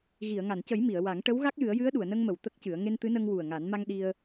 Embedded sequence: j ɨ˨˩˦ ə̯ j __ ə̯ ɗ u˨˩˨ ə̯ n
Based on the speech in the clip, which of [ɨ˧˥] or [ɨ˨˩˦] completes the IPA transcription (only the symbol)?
ɨ˧˥